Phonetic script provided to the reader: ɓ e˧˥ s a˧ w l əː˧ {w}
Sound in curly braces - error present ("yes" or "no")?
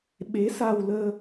yes